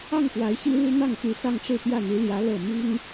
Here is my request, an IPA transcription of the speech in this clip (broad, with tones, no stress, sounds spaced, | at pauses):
ɑ˥˩ ŋ p w a˧˥ ɪ̯ ɕ i˥ ɻ u˥ n̪ ɑ˥˩ ŋ t̪ y˧˥ s ɑ˥˧ ŋ ʈ͡ʂ ɻ̩˥˧ p j ä˥˩ n̪ i˧˥ l j ä˧˥ l ɤ˥˩ m i˥ ŋ